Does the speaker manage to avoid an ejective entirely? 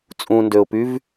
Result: no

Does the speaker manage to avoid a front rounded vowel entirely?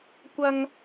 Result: yes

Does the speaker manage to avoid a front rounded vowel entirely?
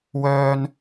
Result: no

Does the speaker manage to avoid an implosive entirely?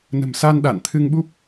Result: no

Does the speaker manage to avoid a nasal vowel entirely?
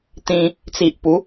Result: no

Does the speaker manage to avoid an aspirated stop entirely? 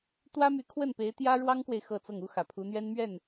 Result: no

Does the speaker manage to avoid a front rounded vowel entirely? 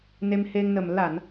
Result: yes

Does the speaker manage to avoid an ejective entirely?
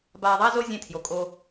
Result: no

